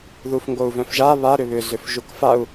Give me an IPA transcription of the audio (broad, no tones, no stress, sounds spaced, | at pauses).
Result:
ð u f ŋ ɡ o u̯ v œ̃ f ʒ a β a ɾ ʏ β ʏ z ʏ f ʒ u k f a u̯